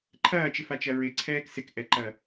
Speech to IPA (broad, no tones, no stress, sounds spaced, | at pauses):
ǃʰ ɐː t͡ʃ ɪ f a t͡ʃ ɐ ɹ ɪ ǀʰ ɛː k s ɪ k ʔ ɛ ǃ ɐ